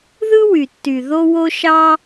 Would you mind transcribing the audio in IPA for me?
ð ɯ˥ w y˩ tː y˩ ð o˥ w o˥ ʃ ɑ˥

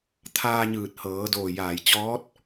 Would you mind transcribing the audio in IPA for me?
t̪ʰ aː˧ ɲ ɯː˧˩ t̚ h ɤː˩˧ d oː˧˩ j aː˧˩ j t͡ɕ ɔː˧˥ t̚

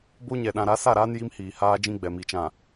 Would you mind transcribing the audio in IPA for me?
b o˦ ɲ ɛ˨ ɗ ã˨ ɾ a˨˦ s a˦˨ ɾ aː˦ n j i˦ m h iː˨ h aː˦ d͡ʒ ĩ˦ ɡ͡b ɛ˨ m i˨ t͡ʃ ã˨

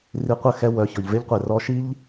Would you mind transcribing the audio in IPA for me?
r i˧ qʷ ə˦˨ x ɛ˧ w œ˨ ç ɔ˨ ʎ v e˧ ʎ qʷ e˨ r ɔ˧ ʃ i˦ ʎ

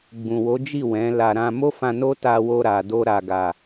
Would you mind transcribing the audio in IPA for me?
ɡ͡b ũ˨ w o˨˦ d͡ʒ i˦˨ w ɛ̃˨˦ l a˧ ɾ ã˧ m o˦ f ã˧ n o˦ t a˧ w o˧ ɾ a˨ d o˧ ɾ a˨ ɡ a˨

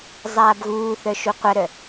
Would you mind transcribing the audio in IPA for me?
zˤ aː b ɣ uː θ œ ʃ u qʷ ɐ ɾ œ

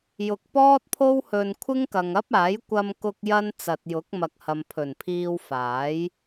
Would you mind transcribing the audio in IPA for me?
j ʊ˨ k̚ p ɔː˥ t̚ pʰ o˥ w h ɵ˧ n kʷʰ ɪ˥ ŋ k ɐ˨ ŋ ɐ˥ p̚ aː˨˥ j kʷ ɐ˧ m k ʊ˧ k̚ j ɐ˥ n t͡s ɐ˨ t̚ j ʊ˨˥ k̚ m ɐ˨ k̚ h ɐ˨ m pʰ ɵ˨˩ n pʰ iː˧ w f aː˨˥ j

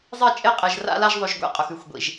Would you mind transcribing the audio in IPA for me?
zˤ i˥˩ t͡ʃʼ e˥˩ qʼ e˨ ʒ r a̰˥˧ l a˥˧ ʒ ðˤ ʉ˨ ʒ ɡʷ ḛ˥˩ qʼ ɵ˨ x ʉ˥˧ xʷ ɡʷ ḭ˨ ʒ

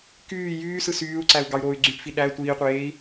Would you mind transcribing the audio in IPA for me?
k yː j yː s ɯ s yː u̯ ǀ æ u̯ ɡ ɑ y̯ ɾ oː y̯ ɡ͡ǀ y p f i ɗ æ tʷ iː qʷ eː i̯

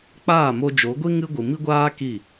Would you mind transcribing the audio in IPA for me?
k͡p aː˦˨ m o˧ d͡ʒ o˨˦ ɡʷ i˦ ŋ ɨ˦ ɡʷ ɨ˨ m i˦ ɡʷ aː˦ k i˦˨

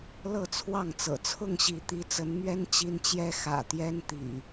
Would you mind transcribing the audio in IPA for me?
l ɤ˥˨ t͡sʰ w ɑ˥˨ ŋ t͡s ɤ̰˨˩ t͡sʰ ʊ˥˨ ŋ ɕ i˨˦ t̪ i˨˦ t͡s ə˨˦ n m ɥ ɛ˦ n t͡ɕ i˦ n t͡ɕ j ɛ˦ x ä̰˨˩ t̪ j ɛ˦ n t̪ ḭ˨˩

